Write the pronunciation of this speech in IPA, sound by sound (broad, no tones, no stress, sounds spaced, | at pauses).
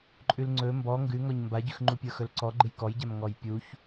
ǃʼ ʉ l ŋ͡ǀ ɵ m b ɔ ŋ ɡ ʉ ŋ ɔ ɲ m b a ɟ ʉ x ŋ͡ǃ u pʲ ə˞ x ɵ l ǀ ɔ ɡ͡ǃ ɨ j k ɔ j ɟ a m ŋ ɔ j pʲ u ç